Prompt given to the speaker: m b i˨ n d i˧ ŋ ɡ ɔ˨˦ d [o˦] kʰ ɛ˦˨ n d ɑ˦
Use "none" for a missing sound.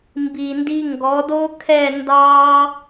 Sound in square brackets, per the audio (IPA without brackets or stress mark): o˦